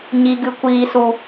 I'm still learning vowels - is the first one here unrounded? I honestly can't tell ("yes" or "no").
yes